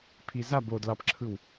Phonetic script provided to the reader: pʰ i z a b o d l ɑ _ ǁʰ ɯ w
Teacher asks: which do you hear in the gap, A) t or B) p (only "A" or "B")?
B